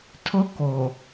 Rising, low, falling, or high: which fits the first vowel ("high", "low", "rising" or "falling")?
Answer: high